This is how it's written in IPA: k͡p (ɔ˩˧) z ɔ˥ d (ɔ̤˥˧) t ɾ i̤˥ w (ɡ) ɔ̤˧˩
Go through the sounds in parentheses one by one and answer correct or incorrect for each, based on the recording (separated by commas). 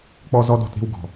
incorrect, correct, correct